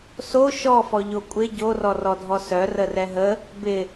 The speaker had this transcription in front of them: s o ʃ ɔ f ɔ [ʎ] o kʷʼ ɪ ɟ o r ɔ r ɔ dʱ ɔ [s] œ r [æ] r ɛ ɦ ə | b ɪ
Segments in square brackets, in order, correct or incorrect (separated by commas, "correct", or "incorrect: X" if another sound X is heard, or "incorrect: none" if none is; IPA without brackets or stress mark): correct, correct, incorrect: ə